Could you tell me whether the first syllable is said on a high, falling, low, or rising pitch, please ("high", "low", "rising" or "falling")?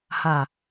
low